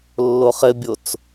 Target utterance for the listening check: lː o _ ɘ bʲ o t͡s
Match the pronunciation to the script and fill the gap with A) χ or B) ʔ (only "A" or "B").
A